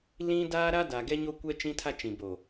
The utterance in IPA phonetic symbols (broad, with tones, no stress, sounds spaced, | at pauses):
l ĩ˦ d aː˦ ɾ a˦ d a˨ ɡ ɛ˦ ɲ o˦ kʷ ɛ˦ t͡ʃ ĩ˦ tʰ a˦ t͡ʃ ĩ˨ b o˨